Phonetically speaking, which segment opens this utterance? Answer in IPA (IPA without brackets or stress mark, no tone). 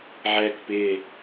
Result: ʕ